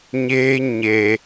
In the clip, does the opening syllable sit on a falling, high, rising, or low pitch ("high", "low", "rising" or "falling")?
high